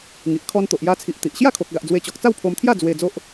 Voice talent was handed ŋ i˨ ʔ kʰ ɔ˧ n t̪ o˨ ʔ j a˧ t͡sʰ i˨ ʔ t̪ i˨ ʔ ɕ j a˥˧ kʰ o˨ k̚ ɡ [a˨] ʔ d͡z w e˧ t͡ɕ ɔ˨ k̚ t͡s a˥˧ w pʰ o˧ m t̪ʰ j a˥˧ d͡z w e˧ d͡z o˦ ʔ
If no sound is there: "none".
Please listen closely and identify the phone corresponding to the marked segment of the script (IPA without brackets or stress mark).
a˨